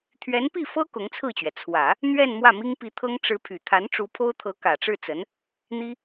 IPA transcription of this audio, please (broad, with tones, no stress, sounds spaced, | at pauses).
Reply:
t̪ʰ ɥ ɛ˧˥ n p i˥˩ f ɤ˥ k ʊ˧˥ ŋ t͡sʰ ɹ̩˥˩ t͡ɕ ɥ ɛ˩ t͡sʰ w ä˨˩˦ | n̪ ɥ ɛ˥˧ n m w ä˥˩ m i˥ ŋ p i˧˥ t̪ʰ ɤ˥ ŋ ʈ͡ʂ ɻ̩˧˥ pʰ y˨˩ t̪ʰ a˧˥ n ʈ͡ʂ u˧˥ pʰ o˥ ʊ̯ t̪ʰ ɤ˧˥ k ä˨˩ ʈ͡ʂ ɻ̩˥˩ t͡s ə˧˥ n | n̪ i˥